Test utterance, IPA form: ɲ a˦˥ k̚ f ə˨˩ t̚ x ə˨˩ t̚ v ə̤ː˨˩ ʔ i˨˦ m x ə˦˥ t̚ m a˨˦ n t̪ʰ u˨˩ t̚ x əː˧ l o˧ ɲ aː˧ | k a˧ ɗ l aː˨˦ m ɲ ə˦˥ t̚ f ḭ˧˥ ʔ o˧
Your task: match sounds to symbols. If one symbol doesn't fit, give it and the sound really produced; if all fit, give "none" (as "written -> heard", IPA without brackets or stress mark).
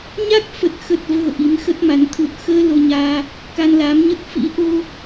ɗ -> n